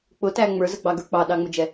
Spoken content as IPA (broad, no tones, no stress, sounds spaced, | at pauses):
k͡p ʊ t æ ŋ͡m ə˞ z ə ɡ͡b ɑ ɡ ə˞ k͡p ɑ ɗ ɑ ŋ͡m ʊ d͡ʒ ɛ